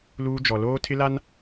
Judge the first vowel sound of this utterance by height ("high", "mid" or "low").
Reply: high